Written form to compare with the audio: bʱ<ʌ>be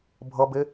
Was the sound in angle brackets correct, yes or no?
yes